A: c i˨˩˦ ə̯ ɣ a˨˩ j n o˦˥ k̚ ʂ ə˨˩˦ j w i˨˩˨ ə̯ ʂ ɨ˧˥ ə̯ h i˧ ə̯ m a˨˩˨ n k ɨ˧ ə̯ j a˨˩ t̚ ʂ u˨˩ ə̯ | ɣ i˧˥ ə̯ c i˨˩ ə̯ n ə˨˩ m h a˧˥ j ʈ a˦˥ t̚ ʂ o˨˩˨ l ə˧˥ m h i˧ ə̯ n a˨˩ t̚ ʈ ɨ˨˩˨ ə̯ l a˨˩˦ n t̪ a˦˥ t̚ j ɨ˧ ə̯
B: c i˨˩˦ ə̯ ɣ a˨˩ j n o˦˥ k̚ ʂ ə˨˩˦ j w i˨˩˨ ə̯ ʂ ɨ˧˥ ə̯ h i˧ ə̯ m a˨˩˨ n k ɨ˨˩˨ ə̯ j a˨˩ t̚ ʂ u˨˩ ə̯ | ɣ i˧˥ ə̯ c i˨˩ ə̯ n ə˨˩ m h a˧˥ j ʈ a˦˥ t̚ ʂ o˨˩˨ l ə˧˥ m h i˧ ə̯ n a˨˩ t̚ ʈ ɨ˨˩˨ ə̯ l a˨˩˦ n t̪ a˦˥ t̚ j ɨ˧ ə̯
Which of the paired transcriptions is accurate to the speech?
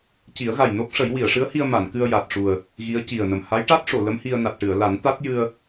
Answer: A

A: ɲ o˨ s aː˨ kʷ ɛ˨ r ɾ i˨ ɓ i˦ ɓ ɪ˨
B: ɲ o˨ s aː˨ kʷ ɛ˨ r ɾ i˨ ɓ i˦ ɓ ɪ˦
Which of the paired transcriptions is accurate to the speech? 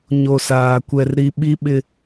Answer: B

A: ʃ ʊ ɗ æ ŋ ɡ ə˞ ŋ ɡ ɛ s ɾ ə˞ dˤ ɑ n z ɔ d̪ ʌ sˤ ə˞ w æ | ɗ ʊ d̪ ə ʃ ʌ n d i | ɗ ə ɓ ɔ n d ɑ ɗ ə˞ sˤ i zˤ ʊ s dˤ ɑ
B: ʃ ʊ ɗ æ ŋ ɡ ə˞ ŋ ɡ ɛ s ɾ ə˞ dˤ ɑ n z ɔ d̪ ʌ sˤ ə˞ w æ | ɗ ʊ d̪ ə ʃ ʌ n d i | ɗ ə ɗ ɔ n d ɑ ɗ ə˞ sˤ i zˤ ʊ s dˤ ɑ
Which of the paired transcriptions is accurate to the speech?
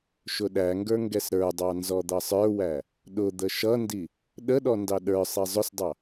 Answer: B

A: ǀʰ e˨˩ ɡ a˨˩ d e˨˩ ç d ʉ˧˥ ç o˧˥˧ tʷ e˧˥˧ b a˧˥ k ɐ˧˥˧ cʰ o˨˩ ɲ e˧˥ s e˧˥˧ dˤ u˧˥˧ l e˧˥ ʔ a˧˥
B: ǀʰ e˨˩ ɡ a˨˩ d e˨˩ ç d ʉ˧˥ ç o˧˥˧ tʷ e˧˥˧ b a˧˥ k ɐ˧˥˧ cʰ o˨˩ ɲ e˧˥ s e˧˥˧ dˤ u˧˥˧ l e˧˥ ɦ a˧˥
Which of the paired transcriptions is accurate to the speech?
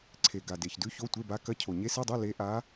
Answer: A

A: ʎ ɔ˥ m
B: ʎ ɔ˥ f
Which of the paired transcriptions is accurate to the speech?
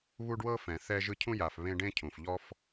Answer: B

